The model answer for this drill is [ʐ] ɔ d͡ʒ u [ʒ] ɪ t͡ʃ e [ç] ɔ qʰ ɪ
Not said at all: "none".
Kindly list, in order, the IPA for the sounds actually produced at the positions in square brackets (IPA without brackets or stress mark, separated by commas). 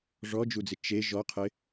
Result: ʐ, d͡z, ʒ